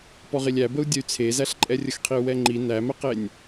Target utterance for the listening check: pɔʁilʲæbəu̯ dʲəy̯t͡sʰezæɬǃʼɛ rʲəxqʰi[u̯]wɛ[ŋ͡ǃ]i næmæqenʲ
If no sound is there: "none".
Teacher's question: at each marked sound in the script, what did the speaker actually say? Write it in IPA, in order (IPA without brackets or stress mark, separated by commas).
u̯, ŋ͡ǃ